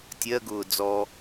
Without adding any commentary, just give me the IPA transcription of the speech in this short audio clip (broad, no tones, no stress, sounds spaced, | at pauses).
tʲ ɜ ɡ ʊː d͡z ɔ